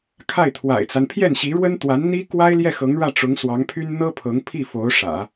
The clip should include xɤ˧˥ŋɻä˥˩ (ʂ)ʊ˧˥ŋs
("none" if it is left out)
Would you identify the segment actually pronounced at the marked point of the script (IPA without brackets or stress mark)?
ʈ͡ʂ